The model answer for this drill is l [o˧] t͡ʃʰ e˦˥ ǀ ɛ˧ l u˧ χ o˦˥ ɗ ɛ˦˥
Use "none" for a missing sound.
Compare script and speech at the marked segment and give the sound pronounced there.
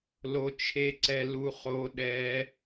o˧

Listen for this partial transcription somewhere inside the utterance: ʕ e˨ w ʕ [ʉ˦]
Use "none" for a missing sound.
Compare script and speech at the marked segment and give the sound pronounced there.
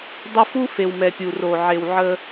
ə˦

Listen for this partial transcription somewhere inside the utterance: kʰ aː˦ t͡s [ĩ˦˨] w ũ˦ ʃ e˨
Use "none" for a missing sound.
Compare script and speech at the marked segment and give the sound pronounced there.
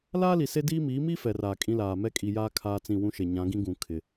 ĩ˦˨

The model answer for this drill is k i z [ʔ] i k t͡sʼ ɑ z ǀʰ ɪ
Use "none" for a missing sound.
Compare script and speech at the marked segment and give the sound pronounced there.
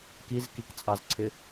k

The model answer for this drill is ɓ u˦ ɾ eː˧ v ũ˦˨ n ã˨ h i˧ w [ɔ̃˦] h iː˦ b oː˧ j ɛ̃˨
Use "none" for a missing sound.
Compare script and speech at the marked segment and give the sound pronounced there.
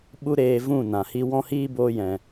ɔ̃˦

